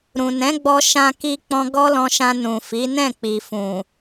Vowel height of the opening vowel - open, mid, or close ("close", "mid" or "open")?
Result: close